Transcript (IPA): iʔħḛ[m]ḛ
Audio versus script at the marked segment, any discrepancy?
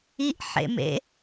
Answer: no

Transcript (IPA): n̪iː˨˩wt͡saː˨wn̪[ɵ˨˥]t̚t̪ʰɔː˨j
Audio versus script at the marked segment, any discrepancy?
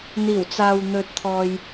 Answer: no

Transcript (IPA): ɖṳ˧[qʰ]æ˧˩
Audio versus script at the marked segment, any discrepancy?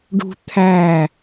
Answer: yes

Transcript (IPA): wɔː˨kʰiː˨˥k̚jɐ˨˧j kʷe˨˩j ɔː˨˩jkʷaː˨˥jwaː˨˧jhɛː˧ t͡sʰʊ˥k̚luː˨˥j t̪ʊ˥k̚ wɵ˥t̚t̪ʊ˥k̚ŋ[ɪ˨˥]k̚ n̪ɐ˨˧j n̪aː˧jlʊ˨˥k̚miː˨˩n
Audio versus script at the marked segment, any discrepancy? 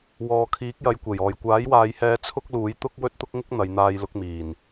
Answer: yes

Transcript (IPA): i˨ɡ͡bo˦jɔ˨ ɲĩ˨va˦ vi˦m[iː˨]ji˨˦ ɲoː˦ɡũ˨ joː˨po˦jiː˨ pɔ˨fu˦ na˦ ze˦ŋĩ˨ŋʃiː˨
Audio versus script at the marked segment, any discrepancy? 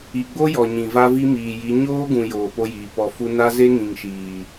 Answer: no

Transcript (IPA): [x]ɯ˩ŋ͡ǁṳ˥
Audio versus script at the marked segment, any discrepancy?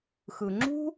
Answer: no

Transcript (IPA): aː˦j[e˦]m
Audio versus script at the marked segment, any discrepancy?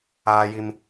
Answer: yes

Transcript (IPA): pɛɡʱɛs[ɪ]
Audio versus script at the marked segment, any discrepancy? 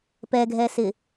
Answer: no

